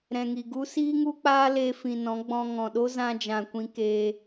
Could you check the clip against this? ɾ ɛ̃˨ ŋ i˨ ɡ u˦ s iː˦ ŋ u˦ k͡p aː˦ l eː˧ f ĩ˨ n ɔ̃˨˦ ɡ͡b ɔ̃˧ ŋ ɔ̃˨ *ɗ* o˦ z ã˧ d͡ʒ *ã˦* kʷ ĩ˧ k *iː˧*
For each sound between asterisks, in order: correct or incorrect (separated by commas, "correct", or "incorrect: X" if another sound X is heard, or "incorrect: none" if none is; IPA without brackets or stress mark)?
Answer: correct, incorrect: ã˨, incorrect: eː˧